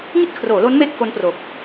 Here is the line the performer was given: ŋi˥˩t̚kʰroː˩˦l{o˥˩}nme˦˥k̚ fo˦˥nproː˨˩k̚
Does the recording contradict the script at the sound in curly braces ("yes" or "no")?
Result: yes